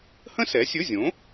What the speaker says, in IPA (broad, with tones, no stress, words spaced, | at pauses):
hə̃˥sɛ˨˥sʲɵ˧˥˧zʲõ˨˥